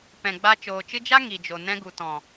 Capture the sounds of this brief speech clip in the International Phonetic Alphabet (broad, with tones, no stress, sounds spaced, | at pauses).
p ɛ̃˨ ɡ͡b a˧ t͡ʃ oː˨ t͡ʃ ɨ˧ d͡ʒ a˦ ŋ i˨ d͡ʒ o˨ n ɛ̃˧ ɡ u˨ t ɔ̃˨